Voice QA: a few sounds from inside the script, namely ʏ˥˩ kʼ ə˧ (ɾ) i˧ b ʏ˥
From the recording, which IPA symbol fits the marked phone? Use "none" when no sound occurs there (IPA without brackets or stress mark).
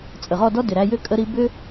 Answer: ɾ